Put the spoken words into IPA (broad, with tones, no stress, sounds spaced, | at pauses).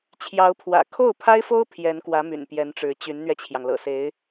t͡ɕʰ j ɑ˧˥ ʊ̯ pʰ w ä̰˨˩ kʰ o˥˩ ʊ̯ pʰ a˥ ɪ̯ f o˥ ʊ̯ pʰ j ɛ˧˥ n k w ä˧˥ m y̰˨˩ n p j ɛ˧˥ n ʈ͡ʂ ɻ̩˧˥ t͡ɕ y˧˥ n n̪ ɥ ɛ˧ t͡ɕʰ j ɑ˩ ŋ l ɤ̰˨˩ s e˧˥ ɪ̯